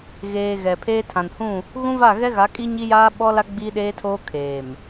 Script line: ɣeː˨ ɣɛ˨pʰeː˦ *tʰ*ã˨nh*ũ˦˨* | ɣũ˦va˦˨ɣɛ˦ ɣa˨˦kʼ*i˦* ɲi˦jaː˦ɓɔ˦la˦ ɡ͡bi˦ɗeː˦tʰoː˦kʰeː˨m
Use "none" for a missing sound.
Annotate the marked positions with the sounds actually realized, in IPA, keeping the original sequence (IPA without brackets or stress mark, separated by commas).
tʰ, ũ˦˨, i˦